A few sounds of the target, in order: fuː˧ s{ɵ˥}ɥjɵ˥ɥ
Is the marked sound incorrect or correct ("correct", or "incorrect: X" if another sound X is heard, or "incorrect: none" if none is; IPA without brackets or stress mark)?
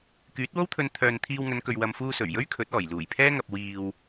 incorrect: ɵ˨˩